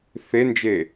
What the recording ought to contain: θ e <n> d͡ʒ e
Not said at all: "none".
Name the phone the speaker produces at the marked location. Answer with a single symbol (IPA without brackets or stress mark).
n